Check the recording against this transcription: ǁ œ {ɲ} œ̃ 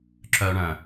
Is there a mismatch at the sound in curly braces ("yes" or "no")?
yes